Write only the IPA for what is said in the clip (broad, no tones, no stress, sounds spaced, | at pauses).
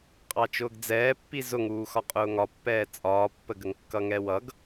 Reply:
qʼ ɑ t͡ʃ ʊː ɡ d͡z ɛː pː i z ʊ ŋ uː x ɒ qʼ ʊː ŋ ɒ pː ɛː t͡sʼ ɒː pː ə ɡ ə ŋ kː ʌ ŋ ɛ w ʌ ɡ